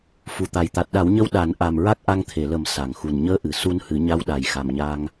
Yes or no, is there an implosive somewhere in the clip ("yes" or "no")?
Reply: yes